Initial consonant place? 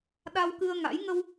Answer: alveolar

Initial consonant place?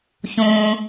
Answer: palatal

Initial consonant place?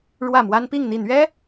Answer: retroflex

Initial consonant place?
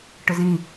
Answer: retroflex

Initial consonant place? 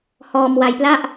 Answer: glottal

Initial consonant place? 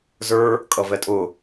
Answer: alveolar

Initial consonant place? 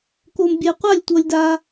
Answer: velar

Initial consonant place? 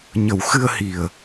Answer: palatal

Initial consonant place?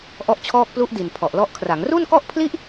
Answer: glottal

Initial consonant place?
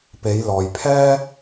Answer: labial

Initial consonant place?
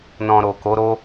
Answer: alveolar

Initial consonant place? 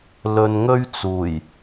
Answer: alveolar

